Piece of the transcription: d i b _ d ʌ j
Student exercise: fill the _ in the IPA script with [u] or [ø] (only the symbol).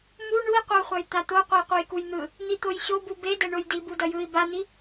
u